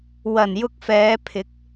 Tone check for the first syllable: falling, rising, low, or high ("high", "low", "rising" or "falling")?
low